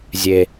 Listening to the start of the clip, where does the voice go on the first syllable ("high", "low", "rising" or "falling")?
low